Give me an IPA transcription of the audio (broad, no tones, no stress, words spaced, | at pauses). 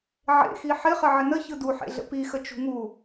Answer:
ʕḛxi ħɪχə ʕɪnə çɯduħḛɮə̰ pixə t͡ʃṳŋu